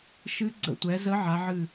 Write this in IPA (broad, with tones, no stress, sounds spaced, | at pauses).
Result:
ʃ ɨ˧˥ ɡ͡ǀ ə̰˧˩ tʷ ɛ˩˧ z ə˧˥ ʕ a˩˧ ʕ ɨ˧˩